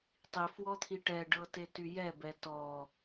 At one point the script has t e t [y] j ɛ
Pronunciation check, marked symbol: correct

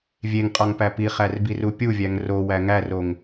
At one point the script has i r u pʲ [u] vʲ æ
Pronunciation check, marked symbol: correct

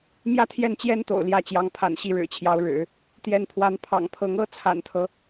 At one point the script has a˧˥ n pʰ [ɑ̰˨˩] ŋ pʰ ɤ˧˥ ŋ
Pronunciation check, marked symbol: correct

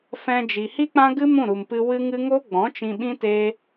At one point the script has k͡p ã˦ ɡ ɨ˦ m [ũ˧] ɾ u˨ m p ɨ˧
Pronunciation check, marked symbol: incorrect: ũ˦˨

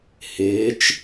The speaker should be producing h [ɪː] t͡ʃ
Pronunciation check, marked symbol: correct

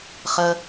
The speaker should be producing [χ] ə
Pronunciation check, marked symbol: correct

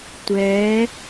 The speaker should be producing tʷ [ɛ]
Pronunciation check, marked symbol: correct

